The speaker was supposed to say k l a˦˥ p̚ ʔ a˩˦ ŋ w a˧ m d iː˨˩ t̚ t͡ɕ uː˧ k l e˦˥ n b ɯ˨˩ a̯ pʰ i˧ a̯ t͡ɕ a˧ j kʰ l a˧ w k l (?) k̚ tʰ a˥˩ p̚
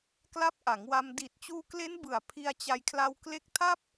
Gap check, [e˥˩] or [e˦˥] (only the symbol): e˦˥